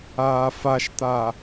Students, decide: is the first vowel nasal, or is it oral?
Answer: oral